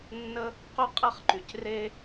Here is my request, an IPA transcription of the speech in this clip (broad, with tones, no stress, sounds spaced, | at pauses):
nː ə˧ | q ʏ˧ qʼ ɛ˧ χ ǃ y˩ c r e˧